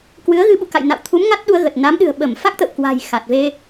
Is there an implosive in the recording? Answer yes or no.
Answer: yes